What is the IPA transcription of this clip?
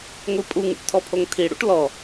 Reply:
ŋʷipʼuŋṵʈ tʰɔpʰoŋtʰiɽṵʈ lɔ

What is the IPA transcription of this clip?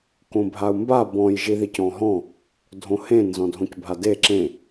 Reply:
kõbʱau̯mba bɔ̃j ʒiðicɔ̃ɦɔ̃ | dʱõhẽ nzɔ̃dʱõcbʱade ǁẽ

